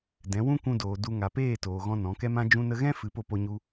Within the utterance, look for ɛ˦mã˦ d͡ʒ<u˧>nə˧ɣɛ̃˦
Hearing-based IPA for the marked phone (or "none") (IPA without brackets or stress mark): ũ˧